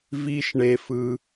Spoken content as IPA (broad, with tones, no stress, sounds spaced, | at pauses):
v i˧ ʃ ɳ e˧ f ɯ˧